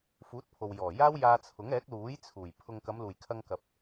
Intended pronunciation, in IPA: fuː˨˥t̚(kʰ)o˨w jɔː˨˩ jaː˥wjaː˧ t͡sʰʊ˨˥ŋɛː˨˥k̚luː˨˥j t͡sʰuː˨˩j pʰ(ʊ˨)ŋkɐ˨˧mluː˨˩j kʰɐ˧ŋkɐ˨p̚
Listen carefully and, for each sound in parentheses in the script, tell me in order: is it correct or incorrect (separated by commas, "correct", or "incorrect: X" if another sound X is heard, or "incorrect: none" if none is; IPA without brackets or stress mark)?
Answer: incorrect: pʰ, correct